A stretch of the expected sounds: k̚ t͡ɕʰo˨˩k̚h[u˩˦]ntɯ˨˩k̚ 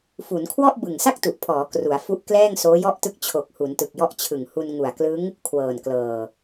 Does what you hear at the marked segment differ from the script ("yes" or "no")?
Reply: no